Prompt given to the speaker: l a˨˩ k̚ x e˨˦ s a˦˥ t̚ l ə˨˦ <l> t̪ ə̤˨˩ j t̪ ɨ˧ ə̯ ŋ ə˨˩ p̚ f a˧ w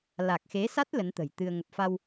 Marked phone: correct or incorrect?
incorrect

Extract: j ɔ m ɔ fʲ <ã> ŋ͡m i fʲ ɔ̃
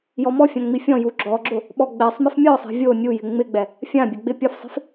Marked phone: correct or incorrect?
correct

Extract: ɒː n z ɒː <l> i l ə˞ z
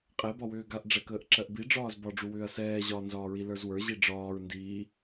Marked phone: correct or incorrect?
incorrect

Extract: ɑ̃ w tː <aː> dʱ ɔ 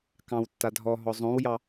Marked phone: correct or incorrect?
incorrect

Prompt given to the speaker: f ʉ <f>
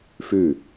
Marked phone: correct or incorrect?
incorrect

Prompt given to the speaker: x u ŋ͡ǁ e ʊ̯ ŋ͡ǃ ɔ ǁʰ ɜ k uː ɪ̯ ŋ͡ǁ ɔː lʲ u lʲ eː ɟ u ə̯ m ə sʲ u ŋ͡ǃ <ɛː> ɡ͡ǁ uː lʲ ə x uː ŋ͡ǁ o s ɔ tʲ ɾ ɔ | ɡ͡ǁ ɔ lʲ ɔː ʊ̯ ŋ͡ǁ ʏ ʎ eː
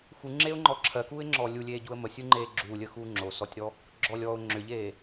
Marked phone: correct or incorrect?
incorrect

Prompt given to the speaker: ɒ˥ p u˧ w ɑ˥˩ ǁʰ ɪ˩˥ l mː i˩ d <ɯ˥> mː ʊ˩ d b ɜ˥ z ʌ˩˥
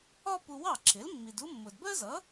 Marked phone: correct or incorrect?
incorrect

